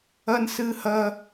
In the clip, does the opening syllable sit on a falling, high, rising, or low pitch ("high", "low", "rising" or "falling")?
high